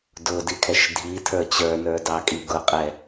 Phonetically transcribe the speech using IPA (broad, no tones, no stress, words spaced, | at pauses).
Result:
dʊdikʰɛʃ dʱi tʰə˞t͡ɕə˞nə˞ dɑkʼiɡʊqʼɛ